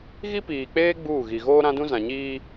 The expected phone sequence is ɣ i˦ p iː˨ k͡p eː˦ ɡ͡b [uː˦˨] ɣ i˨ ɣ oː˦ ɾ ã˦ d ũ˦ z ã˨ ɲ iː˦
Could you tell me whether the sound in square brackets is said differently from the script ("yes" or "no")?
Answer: no